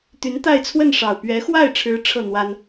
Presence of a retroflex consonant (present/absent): present